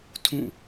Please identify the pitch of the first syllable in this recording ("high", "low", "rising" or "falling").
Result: falling